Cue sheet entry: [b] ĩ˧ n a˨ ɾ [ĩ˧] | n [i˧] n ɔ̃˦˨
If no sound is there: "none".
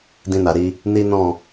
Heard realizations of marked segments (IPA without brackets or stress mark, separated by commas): d, i˧, i˦